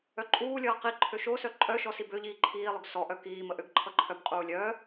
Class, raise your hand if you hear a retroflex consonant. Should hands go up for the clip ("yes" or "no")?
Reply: no